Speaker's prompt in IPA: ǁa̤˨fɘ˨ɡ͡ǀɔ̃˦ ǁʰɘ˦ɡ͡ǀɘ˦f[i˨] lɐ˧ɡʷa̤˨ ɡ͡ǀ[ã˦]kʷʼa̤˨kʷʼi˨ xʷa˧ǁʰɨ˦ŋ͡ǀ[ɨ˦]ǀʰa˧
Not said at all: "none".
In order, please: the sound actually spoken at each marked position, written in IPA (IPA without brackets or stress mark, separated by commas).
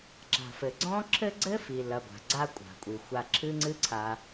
i˨, a˦, ɨ˦